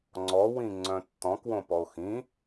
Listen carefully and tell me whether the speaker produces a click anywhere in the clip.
yes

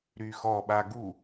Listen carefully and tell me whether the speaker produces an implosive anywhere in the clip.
yes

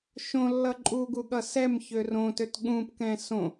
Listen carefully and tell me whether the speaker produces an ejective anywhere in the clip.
yes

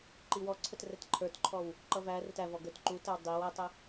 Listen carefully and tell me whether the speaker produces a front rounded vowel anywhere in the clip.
no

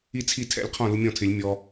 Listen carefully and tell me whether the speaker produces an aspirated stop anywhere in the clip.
yes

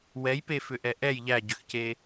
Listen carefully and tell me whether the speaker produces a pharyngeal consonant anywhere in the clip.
no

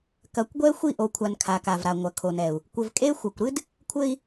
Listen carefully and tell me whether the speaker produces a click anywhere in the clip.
no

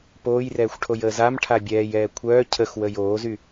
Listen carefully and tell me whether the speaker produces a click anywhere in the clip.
no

